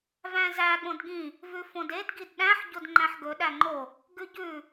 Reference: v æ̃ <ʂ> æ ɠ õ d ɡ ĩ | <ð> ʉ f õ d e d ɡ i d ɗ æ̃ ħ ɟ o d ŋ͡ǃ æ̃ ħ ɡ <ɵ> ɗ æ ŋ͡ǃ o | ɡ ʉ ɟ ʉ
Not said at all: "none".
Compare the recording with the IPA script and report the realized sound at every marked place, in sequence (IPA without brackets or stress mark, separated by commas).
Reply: z, v, ɵ